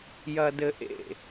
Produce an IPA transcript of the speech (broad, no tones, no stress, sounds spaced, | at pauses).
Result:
j ɐ d ɘ ʔ ḛ